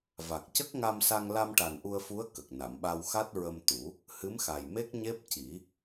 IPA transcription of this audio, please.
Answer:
v a˨˩ k̚ c ə˦˥ k̚ ŋ a˧ m s a˧ ŋ l a˧ m ʈ a˨˩ n ʔ u˧ ə̯ f u˧˥ ə̯ k ə˨˩ k̚ n a˨˩˨ m ɓ a˧ w x a˦˥ t̚ ɹ ə˧ m t̪ u˨˩˦ | h ɨ˧˥ m x a˨˩ j m e˦˥ k̚ ɲ e˦˥ p̚ c i˨˩˦

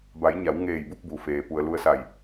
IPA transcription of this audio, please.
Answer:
b a˩˧ j ɲ a˩˧ w ŋ eː˧˩ j b u˥˨ k̚ b u˩ f eː˩ p u˩ ə̯ l u˧ ə̯ s a˧˩ j

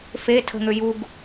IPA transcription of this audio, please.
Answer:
f e tʰ ə̤ ŋ ø j u ɡ

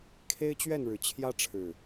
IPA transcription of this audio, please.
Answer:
kʰ e˦ ɪ̯ t͡ɕ ɥ ɛ˥˨ n ɻ ɻ̩˨˩ t͡ɕʰ j ä˦ ʈ͡ʂʰ ɻ̩˨˩

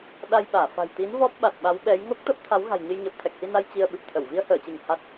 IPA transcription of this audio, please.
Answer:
ɗ a˧ j ɓ aː˧˩ f a̤˨˩ j t̪ i˨˦ n v ɔ˦˥ p̚ ɓ a˨˩ t̚ ɓ a˨˦ w ɓ ɛ˨˦ j ŋ o˦˥ k̚ t̪ ə˦˥ p̚ t̪ʰ a˨˦ w ɣ a̤˨˩ j ɲ ɨ˧ j ɲ əː˨˩ p̚ t̪ʰ ɛ˨˩ k̚ h i˧ n a˧ j t͡ɕ i˧ ə̯ ɓ ɨ˨˩ p̚ t̪ʰ ə˧˩ w v i˧ ə̯ h əː˧˩ t͡ɕ ɨ˧˩ ŋ h a˦˥ t̚

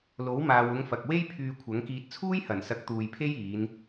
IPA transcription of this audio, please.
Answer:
l o˨˥ w m aː˨ w ʊ˨˧ ŋ f ɐ˨ k̚ w e˥ j pʰ yː˧ kʷʰ ɐ˨˥ ŋ k iː˧ t̚ t͡sʰ uː˥ j h ɐ˨˩ n s ɐ˨˥ k̚ t̪ uː˨ j pʰ e˥ j iː˨˧ n

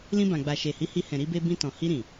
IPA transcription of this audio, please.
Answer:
l ĩ˧ b ã˨ ɡ͡b a˨ ʃ e˨ h i˨˦ h i˧ h ɛ̃˨ ɾ i˧ b e˧ b ĩ˧ t ɔ̃˨ h i˧ ɾ ĩ˨

